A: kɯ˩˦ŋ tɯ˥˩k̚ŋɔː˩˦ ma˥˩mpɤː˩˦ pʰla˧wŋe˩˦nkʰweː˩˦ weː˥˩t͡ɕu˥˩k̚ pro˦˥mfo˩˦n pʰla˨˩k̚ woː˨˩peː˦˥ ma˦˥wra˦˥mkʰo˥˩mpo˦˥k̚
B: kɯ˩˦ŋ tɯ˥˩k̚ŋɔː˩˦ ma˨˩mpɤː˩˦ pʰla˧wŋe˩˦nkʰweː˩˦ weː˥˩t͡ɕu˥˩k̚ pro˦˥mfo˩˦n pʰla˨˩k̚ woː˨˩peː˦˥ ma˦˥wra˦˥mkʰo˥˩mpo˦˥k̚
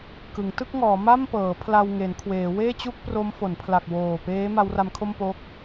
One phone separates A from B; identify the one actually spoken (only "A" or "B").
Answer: A